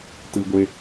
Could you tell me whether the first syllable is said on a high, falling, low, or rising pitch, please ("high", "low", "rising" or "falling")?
high